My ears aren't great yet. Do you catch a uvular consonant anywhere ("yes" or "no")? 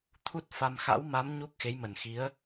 no